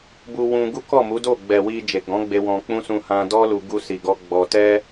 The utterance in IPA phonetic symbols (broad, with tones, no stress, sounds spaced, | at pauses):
b u˧ w ũ˧ ɡ u˦ k ɔ˦˨ m u˨˦ d o˦˨ ɡ͡b ɛ˨ w i˧ d͡ʒ e˨ ɡ ɔ̃˨˦ ɡ͡b e˧ w ɔ̃˧ k͡p ũ˦ s ũ˧ h ã˧ d ɔ˦ l u˧ ɡ u˧ s i˨ ɡ ɔ˧ ɡ͡b ɔ˧ t ɛ˦